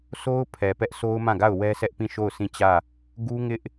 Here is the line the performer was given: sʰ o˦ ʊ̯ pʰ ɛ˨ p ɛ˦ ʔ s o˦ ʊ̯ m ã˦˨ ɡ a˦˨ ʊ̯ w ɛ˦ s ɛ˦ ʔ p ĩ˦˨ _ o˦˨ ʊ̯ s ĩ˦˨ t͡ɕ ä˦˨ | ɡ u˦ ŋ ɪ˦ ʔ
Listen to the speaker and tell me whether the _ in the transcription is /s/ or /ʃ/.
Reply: ʃ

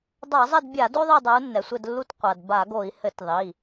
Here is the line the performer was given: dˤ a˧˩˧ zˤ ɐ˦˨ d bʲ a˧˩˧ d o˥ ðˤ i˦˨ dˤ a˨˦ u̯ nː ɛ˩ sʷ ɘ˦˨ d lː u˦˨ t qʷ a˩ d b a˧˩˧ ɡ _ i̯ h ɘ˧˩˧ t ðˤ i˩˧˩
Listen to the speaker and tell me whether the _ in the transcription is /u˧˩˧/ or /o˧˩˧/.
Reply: o˧˩˧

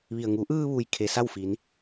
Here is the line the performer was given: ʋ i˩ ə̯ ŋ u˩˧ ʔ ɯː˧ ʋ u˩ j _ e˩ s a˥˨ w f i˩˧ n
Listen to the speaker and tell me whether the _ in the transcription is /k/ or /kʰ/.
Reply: kʰ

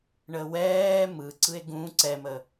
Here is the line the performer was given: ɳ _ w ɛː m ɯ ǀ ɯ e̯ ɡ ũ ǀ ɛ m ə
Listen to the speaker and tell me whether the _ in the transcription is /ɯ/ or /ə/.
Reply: ə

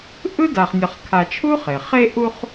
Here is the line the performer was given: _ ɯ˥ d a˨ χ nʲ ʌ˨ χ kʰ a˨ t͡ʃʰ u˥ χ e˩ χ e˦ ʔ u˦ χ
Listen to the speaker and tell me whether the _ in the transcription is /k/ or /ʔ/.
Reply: ʔ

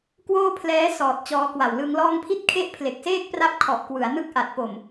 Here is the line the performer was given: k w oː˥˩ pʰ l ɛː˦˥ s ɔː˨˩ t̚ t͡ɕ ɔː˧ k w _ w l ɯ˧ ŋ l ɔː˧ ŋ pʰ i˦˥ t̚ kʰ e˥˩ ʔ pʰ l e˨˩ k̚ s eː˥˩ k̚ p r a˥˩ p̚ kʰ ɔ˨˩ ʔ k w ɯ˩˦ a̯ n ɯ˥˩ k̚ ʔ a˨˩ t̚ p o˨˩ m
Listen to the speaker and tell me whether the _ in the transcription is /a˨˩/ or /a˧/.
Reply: a˨˩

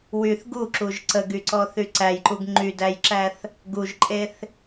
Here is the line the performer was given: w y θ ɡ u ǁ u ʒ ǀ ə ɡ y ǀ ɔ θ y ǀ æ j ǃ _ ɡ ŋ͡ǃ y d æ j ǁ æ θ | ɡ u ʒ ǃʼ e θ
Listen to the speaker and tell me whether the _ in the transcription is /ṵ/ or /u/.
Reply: u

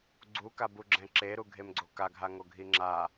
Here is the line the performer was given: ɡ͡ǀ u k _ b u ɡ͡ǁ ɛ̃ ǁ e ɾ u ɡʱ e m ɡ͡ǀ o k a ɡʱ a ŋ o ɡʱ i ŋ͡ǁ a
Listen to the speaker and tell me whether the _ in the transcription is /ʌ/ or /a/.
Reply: a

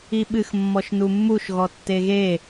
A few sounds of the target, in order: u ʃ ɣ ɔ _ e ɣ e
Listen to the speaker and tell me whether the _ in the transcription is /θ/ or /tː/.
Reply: tː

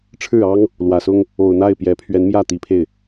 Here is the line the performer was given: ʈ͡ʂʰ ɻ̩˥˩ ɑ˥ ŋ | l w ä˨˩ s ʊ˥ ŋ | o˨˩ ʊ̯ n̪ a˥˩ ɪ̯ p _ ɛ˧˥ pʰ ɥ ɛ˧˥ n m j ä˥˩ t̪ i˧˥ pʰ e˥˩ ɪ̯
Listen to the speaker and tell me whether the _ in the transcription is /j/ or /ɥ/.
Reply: j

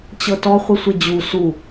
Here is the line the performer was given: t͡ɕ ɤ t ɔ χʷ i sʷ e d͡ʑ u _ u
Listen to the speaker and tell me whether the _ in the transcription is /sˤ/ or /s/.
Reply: s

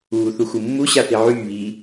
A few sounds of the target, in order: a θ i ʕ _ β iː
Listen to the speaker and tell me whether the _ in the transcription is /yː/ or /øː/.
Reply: yː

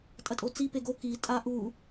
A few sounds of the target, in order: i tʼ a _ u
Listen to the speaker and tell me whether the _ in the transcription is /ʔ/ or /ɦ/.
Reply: ʔ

